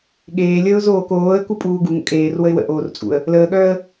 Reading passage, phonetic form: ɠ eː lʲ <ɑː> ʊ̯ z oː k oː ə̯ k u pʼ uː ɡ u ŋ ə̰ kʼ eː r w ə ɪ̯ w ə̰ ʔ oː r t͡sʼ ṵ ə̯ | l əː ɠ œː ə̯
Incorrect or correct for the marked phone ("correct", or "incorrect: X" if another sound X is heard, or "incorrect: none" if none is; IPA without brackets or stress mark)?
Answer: incorrect: əː